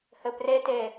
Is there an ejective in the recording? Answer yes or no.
no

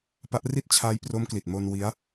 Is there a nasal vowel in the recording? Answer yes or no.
no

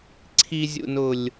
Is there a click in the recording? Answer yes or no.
yes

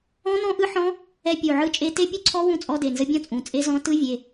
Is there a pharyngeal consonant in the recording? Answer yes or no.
yes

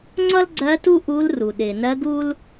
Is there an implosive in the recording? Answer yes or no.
yes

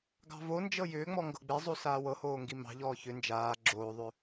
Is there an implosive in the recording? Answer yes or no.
no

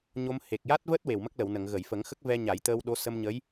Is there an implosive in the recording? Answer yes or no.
yes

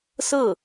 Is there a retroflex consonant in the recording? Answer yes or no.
no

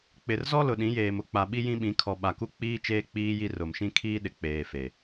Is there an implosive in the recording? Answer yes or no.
yes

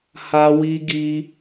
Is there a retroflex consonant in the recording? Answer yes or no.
no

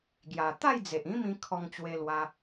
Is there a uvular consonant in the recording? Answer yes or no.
no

